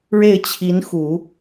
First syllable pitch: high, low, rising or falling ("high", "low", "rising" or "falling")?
falling